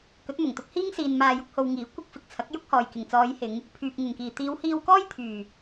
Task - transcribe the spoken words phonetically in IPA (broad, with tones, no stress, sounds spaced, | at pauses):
k ɵ˨˥ t̚ m ʊ˨˩ ŋ t̪ ʊ˧ k̚ h iː˥ ŋ s iː˧ n m aː˧ j ʊ˥ k̚ h o˧ w ŋ iː˨˥ kʷ ɪ˧ k̚ f ɪ˨ k̚ t͡sʰ ɐ˨˥ k̚ j ʊ˥ k̚ h ɔː˨ j k ɪ˨˩ ŋ t͡s ɔː˨˧ j h ɪ˨˧ ŋ | pʰ yː˨ p̚ ŋ ɪ˨˩ ŋ k iː˨˩ t̪ iː˨˧ w h iː˧ w k ɔː˥ j t̪ʰ yː˨˩